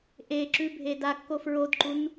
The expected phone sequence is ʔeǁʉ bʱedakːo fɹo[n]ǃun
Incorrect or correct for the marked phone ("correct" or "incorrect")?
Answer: incorrect